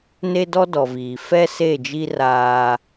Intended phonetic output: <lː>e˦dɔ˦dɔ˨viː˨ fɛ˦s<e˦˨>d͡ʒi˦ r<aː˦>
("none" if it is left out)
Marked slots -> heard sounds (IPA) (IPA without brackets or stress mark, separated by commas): n, e˦˨, aː˦